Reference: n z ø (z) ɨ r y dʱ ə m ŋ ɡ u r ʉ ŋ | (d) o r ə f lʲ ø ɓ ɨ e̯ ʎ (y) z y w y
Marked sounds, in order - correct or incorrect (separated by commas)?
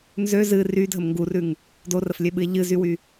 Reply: correct, correct, incorrect